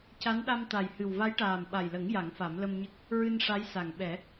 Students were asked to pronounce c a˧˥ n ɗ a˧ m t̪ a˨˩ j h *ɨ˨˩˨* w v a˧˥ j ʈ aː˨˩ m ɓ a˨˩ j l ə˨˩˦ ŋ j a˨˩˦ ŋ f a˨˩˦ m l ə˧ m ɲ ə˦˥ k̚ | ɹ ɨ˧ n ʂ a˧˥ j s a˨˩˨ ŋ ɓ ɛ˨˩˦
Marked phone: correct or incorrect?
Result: incorrect